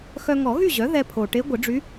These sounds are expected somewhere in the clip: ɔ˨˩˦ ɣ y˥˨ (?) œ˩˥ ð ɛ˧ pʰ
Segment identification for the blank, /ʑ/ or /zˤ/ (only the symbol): ʑ